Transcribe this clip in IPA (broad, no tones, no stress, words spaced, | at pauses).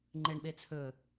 ŋ͡ǃeɳɓet͡sʰɵ